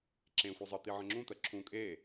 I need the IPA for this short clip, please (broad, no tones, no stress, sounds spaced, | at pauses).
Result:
ǁ ẽ xʷ i zˤ ʌ t̪ i ʕ ə̃ ŋ͡ǁ ũ t̪ ɜ ǁʰ ũ kʼ e